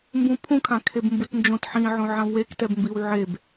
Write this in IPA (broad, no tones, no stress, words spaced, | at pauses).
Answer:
mbũpʰũkʰã kʰebmbɯtnd͡ʒõt ħĩʕõ ʕãvwektɛbmbiw ʕeb